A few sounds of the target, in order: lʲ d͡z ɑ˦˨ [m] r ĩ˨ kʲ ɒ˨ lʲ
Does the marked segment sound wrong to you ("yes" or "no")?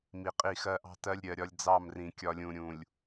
no